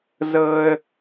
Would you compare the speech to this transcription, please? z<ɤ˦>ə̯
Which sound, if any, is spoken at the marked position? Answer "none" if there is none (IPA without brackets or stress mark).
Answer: ɤ˦